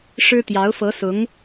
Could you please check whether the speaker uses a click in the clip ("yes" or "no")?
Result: no